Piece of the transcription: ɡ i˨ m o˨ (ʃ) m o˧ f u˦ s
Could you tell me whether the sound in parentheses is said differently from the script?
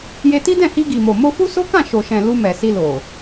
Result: yes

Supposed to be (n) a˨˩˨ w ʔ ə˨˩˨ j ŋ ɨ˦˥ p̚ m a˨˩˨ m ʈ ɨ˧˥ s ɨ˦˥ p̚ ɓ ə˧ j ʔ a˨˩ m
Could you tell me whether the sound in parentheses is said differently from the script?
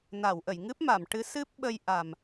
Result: no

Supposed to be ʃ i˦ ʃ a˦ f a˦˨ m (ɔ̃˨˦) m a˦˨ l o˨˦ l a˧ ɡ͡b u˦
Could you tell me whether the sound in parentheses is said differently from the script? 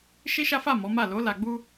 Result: yes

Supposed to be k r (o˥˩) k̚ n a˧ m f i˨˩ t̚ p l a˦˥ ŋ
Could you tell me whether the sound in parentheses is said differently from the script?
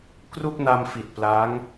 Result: yes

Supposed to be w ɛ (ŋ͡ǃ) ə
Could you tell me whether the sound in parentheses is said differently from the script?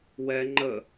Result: no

